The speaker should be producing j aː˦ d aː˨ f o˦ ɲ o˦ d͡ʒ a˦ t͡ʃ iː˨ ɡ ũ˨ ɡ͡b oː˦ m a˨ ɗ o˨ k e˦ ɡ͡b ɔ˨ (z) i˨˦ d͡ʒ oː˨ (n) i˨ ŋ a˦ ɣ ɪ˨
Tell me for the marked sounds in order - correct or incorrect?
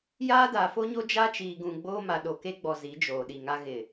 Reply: correct, incorrect: ɗ

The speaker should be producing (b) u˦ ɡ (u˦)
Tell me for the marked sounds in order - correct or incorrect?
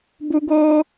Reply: correct, incorrect: o˦

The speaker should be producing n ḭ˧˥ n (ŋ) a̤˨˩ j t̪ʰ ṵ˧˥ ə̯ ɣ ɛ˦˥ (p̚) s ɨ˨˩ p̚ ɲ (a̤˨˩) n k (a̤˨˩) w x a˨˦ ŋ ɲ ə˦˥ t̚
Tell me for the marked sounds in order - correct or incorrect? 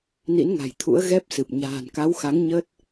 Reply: correct, correct, incorrect: a̤ː˨˩, incorrect: a˨˦

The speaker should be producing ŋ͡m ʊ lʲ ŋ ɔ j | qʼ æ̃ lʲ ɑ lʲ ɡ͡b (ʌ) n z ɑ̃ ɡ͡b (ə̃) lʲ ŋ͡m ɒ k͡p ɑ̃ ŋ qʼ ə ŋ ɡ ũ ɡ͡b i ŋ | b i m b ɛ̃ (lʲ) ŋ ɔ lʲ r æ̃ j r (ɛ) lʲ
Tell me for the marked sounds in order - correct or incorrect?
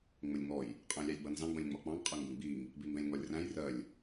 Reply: correct, correct, correct, incorrect: ɜ

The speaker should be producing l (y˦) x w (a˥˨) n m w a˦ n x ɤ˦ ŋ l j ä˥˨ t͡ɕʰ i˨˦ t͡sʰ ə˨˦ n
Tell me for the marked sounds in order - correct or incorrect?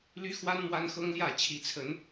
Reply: correct, incorrect: a˦

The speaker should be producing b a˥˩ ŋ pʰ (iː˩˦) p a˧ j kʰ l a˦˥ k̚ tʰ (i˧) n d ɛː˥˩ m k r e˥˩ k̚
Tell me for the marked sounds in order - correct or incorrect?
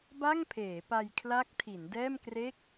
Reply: incorrect: eː˩˦, incorrect: i˩˦

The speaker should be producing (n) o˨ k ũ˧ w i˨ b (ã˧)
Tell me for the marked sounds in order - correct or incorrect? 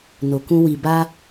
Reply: correct, incorrect: a˧

